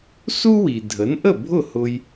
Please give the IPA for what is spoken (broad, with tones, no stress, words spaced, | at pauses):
su˥wi˩ dʱə˩˥nʔə˥˩bʱʊ˥˩hʊ˧j